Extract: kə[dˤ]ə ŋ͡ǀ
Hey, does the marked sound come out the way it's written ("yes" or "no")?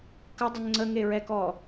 yes